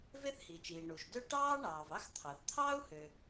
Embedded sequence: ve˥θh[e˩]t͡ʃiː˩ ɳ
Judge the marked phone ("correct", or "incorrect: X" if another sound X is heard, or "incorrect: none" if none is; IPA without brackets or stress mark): incorrect: i˩